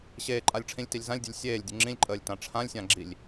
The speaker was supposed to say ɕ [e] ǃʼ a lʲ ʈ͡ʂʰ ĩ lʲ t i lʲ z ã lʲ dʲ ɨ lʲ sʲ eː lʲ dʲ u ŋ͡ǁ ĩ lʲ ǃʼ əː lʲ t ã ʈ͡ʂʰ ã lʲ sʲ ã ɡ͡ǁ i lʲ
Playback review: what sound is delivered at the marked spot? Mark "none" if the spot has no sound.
eː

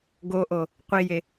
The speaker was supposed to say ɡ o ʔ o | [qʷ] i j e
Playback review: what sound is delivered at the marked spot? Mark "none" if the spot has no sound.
qʷ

